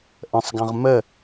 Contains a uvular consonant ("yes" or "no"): yes